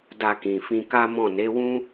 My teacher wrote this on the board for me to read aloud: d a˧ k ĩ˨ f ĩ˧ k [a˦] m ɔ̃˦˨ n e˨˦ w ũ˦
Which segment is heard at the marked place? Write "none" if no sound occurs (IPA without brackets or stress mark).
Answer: a˦